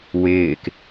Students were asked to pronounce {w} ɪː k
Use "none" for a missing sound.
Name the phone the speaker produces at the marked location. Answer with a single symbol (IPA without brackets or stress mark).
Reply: w